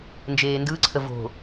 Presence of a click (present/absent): present